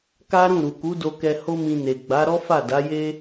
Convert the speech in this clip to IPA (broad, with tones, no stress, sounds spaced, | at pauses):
k a˦ ɾ ũ˦˨ ɾ u˨ k u˨˦ d o˧ k ɛ˧ h o˦ m ĩ˧ n e˨ ɡ͡b a˨˦ ɾ ɔ˦ f a˦˨ d a˨˦ j e˦